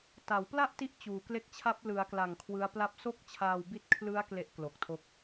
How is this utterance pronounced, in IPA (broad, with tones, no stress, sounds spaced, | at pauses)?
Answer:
t a˩˦ w p l a˥˩ ʔ t i˦˥ ʔ t͡ɕ uː˨˩ k l e˦˥ k̚ t͡ɕʰ a˦˥ p̚ l ɯ˩˦ a̯ k l a˨˩ ŋ kʰ w ɯ˦˥ a̯ p l a˥˩ p̚ s o˥˩ k̚ t͡ɕʰ aː˧ w b i˦˥ t̚ kʰ l ɯ˦˥ a̯ k l e˦˥ ʔ k l o˨˩ k̚ tʰ o˦˥ k̚